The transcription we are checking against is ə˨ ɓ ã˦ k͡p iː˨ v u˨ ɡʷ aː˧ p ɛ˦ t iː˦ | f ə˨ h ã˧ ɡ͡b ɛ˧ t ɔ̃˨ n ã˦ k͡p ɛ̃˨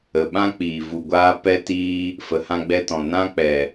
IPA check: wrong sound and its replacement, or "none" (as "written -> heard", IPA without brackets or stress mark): ɛ̃˨ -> ɛ˨